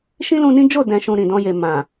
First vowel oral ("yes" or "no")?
no